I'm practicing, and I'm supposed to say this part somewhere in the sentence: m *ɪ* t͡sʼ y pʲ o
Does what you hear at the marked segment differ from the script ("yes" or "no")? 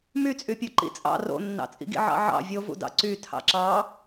yes